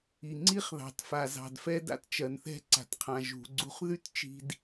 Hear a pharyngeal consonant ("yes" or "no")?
no